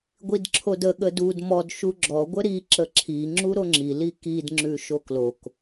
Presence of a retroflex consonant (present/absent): absent